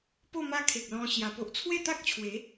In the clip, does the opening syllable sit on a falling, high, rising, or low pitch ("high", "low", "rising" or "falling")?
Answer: falling